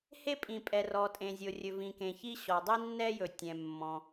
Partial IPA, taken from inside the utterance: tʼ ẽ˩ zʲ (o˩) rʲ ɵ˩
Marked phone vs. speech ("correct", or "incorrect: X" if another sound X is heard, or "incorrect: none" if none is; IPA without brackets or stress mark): correct